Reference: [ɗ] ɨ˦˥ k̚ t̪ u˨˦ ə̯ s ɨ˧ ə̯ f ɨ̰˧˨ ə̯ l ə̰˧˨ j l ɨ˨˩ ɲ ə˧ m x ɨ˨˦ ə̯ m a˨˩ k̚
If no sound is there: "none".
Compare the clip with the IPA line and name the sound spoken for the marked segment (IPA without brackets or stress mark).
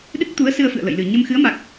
ɗ